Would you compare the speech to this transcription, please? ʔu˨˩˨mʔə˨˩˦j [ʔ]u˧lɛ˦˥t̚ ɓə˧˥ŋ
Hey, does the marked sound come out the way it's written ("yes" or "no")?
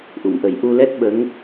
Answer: yes